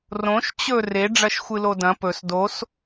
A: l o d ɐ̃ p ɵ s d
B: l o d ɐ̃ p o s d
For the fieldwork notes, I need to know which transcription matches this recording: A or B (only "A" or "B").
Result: A